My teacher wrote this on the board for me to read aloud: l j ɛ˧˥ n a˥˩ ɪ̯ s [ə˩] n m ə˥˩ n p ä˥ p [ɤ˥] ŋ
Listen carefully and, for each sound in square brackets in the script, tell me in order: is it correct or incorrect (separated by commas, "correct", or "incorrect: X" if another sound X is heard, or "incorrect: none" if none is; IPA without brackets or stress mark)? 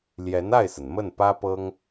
correct, correct